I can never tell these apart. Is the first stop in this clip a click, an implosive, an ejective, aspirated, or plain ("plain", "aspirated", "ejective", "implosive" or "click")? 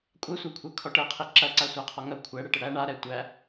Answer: ejective